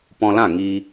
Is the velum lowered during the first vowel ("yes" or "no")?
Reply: yes